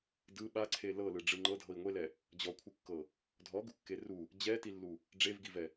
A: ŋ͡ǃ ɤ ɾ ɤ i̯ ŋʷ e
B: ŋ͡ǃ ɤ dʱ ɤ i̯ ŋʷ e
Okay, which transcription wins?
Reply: B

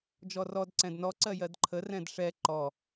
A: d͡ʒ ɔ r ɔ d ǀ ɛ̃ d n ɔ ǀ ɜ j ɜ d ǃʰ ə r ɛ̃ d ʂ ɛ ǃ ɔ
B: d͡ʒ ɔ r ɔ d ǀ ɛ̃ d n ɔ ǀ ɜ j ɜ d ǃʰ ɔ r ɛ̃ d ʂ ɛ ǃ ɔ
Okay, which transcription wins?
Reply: A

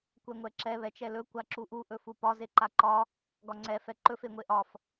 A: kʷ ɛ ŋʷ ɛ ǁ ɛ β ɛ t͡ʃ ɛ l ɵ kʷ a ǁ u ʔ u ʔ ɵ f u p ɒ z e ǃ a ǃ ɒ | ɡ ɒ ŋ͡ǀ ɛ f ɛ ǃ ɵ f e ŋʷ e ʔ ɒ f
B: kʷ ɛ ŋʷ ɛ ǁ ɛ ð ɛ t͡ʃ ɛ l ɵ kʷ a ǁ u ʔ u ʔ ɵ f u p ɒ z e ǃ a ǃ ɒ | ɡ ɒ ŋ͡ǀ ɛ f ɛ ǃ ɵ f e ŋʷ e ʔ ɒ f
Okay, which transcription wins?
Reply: A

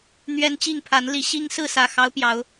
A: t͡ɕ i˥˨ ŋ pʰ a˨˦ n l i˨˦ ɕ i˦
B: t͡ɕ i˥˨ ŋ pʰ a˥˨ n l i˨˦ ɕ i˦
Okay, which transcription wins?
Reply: A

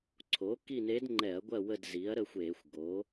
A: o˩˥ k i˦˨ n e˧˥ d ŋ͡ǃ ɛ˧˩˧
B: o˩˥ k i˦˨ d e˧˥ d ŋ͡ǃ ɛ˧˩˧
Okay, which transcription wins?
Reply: A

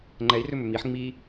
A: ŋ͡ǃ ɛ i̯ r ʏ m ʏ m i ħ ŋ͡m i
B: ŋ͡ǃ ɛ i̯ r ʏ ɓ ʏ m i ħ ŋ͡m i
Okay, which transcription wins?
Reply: A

